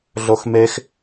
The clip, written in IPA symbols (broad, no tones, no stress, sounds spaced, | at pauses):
ɮ o x m e x